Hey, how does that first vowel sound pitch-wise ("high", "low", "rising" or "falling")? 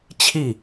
falling